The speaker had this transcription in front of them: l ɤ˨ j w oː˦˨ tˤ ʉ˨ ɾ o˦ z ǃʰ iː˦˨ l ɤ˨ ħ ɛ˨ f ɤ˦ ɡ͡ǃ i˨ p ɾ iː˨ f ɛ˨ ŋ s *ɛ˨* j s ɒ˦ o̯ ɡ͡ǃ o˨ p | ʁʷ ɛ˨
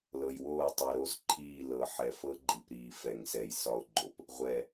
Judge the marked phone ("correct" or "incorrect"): correct